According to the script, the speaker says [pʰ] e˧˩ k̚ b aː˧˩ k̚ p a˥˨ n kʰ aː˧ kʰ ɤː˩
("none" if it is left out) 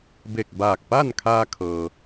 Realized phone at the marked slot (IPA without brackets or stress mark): b